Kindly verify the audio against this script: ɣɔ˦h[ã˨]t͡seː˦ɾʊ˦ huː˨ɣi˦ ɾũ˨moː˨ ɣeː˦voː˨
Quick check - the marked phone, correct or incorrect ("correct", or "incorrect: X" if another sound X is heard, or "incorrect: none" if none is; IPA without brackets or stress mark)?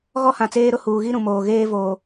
correct